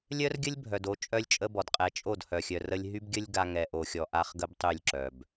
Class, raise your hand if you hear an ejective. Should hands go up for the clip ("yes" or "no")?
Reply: yes